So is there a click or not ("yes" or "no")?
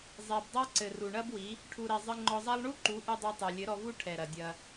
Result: yes